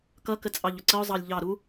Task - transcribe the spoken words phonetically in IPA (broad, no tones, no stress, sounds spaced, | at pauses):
k ʌ k ə t͡sʼ ɑ ʎ ʊ ǀ ə ʊ̯ zˤ ɑ lʲ ʎ ɑ ɾ u